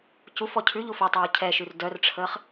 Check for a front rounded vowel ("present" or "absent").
present